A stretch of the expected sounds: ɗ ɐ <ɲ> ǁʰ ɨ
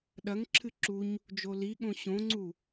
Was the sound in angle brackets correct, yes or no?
no